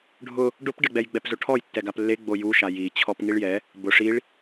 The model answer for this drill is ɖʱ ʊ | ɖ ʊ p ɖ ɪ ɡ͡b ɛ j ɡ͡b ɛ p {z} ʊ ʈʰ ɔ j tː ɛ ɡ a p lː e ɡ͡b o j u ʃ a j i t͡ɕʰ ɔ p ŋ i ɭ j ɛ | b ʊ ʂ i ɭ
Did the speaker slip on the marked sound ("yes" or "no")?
no